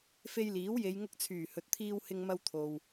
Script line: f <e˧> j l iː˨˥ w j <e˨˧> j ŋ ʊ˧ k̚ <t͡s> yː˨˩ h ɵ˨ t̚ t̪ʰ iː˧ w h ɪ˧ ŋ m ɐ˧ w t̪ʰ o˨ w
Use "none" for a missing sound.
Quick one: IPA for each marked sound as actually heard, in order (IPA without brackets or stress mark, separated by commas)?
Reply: e˧, e˨˧, t͡sʰ